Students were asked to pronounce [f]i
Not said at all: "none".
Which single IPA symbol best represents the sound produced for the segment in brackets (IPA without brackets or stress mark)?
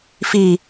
f